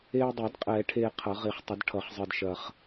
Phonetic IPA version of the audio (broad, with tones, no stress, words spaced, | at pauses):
eː˧dˤɛ˨˩˦d qʼɛː˨˩˦ʈʰeː˧ qʰʌ˨˩˦ʁi˨˩˦χtˤə˨˩˦d ʈʰʌ˨˩˦χzˤɯ˧d ʃɐ˧χ